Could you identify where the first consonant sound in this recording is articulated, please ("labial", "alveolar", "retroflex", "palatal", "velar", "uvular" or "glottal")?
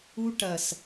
retroflex